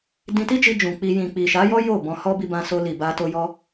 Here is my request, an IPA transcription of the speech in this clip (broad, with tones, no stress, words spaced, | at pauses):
dĩ˧ti˦d͡ʒi˧ d͡ʒũ˨k͡pi˧ jĩ˨k͡pi˨ʃa˨˦jɔ˦ jo˦˨ bɔ̃˧hɔ˦ bi˧bã˧so˧li˨ ba˧ to˧jɔ˧